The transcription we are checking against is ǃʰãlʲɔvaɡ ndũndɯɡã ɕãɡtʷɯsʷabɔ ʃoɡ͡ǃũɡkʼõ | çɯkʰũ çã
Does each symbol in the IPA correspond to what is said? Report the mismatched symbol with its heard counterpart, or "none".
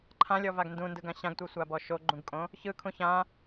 none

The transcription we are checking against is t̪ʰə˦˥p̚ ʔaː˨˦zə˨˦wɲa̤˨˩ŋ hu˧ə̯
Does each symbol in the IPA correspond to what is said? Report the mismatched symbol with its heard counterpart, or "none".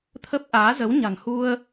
none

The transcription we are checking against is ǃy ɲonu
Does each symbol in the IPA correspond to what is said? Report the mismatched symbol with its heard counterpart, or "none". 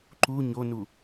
y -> u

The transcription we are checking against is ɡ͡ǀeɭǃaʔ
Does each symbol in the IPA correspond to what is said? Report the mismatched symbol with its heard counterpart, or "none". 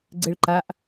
none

